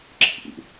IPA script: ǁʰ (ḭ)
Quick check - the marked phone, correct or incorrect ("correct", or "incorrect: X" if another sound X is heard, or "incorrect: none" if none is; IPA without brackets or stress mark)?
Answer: correct